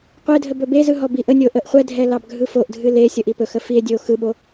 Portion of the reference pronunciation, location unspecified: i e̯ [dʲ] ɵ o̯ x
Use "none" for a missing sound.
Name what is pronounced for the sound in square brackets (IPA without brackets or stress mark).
dʲ